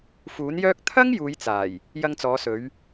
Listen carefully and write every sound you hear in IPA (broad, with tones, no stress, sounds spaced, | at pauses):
f uː˨˥ n j œː˥ k̚ t̪ʰ ɐ˥ ŋ j uː˨˧ j t͡s aː˨˩ j | j ɐ˧ ŋ t͡s ɔː˨˧ s ɵ˨˧ ɥ